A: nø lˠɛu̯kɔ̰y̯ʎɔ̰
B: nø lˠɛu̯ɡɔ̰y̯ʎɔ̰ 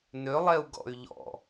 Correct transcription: B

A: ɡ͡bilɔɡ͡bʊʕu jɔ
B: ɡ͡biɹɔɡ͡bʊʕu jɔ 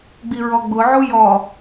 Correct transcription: B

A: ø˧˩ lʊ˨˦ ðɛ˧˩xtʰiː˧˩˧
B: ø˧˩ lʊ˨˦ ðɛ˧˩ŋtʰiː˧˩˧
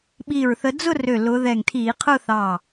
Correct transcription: B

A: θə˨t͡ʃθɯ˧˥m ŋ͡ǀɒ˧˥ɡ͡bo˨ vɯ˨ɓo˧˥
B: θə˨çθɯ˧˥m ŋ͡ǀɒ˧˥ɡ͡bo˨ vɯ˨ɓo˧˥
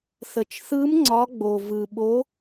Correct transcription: A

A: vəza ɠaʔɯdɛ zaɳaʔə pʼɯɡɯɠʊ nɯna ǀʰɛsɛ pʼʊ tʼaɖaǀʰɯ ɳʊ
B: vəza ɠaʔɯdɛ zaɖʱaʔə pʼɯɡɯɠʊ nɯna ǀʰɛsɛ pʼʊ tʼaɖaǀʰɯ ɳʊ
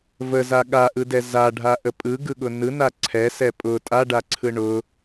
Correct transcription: B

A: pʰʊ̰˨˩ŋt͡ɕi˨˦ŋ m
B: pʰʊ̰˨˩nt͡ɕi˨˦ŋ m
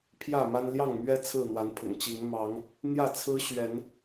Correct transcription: A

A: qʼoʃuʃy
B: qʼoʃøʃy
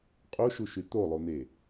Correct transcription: A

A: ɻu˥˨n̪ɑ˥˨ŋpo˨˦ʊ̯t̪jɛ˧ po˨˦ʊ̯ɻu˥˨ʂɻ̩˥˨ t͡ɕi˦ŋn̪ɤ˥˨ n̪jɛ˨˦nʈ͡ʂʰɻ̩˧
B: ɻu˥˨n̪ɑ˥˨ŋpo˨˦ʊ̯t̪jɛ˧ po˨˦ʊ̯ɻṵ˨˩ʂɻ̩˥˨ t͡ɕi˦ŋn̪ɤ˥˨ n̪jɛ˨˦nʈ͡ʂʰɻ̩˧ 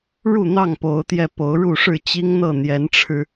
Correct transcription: A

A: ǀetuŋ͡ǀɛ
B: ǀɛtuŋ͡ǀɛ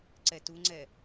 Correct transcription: B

